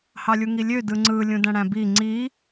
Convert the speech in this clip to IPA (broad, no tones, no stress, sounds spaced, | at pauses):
h ɑ lʲ u ŋ i lʲ ø d ɯ ŋ͡ǀ ɯ lʲ ũ d æ̃ ɽ æ̃ b i ŋ͡ǀ i